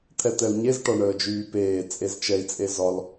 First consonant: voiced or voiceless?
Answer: voiceless